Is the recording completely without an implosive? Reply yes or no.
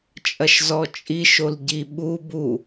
no